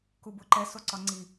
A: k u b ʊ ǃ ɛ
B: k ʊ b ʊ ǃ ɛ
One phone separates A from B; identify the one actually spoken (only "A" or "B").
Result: A